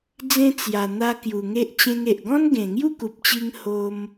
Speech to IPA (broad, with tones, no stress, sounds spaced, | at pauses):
d͡z ẽ˧ t͡s j a˨˩ n̪ a˧ k j u˨˩ ŋ e˦ ʔ t͡ɕ ẽ˧ ŋ e˨ ʔ ɡ ɔ̃˦ n ɡ ẽ˨˩ ŋ j u˥˧ k u˨ p̚ t͡ɕ i˧ ŋ h o˧ m